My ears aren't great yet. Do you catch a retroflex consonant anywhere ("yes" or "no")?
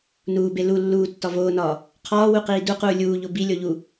no